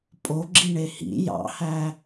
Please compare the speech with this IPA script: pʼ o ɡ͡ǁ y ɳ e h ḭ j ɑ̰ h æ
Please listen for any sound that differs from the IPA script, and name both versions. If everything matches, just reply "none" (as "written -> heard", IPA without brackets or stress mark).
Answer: y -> i